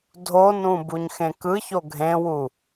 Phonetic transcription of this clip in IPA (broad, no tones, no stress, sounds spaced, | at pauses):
dʱ o n ũ b u ɲ x ẽ k ɯ ç o ɡʱ ẽ w u